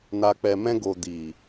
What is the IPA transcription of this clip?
n a˨ k͡p ɛ˨ m ɛ̃˧ ɡ o˨ d i˨

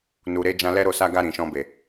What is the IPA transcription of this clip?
n u˨ ɾ e˨˦ d͡ʒ ã˧ l ɛ˦ ɾ o˦˨ s a˧ ɡ a˧ ɾ ĩ˨ ʃ ɔ̃˧ b e˨

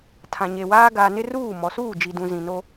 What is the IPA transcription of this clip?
tʰ ã˨ ɲ e˨ w aː˦ ɡ aː˨ n ɪ˦ r uː˦˨ m ɔ˨ s uː˦˨ d͡ʒ i˨ d ũ˨ z ĩ˨ n o˦

